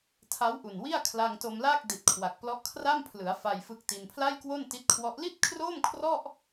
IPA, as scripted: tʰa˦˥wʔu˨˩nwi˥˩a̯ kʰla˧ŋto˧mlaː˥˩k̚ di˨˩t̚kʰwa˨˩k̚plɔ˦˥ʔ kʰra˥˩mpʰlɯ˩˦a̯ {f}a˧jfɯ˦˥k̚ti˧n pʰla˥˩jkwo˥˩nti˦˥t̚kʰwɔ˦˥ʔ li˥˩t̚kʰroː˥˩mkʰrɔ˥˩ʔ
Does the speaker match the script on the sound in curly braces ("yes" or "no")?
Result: yes